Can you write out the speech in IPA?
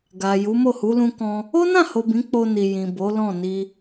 ɡ a˨ j u˨˦ m o˦˨ h u˨˦ l ũ˧ k ɔ̃˧ | o˦ n ã˦˨ h o˨ b ĩ˨˦ k͡p o˧ n i˨ j ĩ˨ b o˨˦ l ɔ̃˦˨ n i˧

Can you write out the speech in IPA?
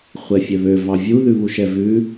χʷ ɛ fʲ ɛ β ø v ɑ vʲ u ð ʉ β u ʃ ɛ v ʉ

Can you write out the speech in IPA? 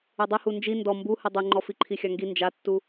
ɨ dˤ ɨ h u n d͡ʒ i n d ɔ m b u h ɨ dˤ ɨ ŋ͡ǃ ɔ f i ǃʰ i xʲ a ŋ ɡ i n d͡ʒ a tː u

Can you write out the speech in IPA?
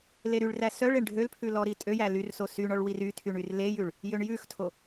l e ɾ y ɭ r æ s œ ɭ e ɳ ɖʱ ø l pʰ ʉ l ɔ ɾ i tʼ ø j æ l y r s o s y ɳ ɔ ɭ w i r y tʰ y ɳ y r l e j ʉ ɭ | j ø ɳ j ʉ x tʰ o

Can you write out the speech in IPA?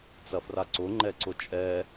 t͡s ɐ f r a ǀ ʊ ŋ͡ǃ ɛ ǀ ʊ t͡ʃʼ ɛ

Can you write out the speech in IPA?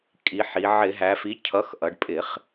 kʼ i˩˧ ħ i˩˧ ʕ ɪ˧˩˧ ɦ æ˩˧ f i˩˥ cʰ ʌ˩˥ x ʔ ʌ˩˧ ɖ pʼ ɪ˧˩˧ χ

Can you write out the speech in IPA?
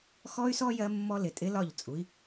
x ɔ˦ y̯ s ɔ˦ j ɜ˦ mː ɔ˦ l ɪ˨ tʼ ɪ˦ l ɒ˦˨ ʎ t͡sʼ u˨˦ i̯

